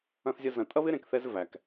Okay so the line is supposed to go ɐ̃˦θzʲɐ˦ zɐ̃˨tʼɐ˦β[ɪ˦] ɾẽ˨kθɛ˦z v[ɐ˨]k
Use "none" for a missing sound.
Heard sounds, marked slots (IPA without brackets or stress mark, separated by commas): ɪ˦, æ˨